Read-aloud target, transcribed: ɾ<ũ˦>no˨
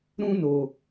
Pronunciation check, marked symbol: correct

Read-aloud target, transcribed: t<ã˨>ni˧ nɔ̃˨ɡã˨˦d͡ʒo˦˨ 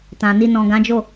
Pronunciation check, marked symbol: correct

